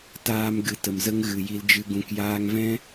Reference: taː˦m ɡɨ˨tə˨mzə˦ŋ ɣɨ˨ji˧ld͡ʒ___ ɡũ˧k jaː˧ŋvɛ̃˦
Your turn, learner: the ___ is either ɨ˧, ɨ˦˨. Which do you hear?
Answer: ɨ˧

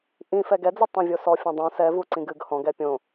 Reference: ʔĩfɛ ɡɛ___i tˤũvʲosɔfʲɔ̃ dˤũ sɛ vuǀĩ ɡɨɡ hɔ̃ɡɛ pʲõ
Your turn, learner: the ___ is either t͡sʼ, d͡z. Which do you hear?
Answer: d͡z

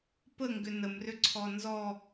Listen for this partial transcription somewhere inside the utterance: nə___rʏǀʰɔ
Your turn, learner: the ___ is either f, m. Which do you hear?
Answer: m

